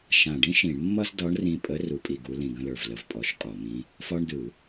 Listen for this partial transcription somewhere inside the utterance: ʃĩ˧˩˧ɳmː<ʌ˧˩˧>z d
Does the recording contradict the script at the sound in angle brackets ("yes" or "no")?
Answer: yes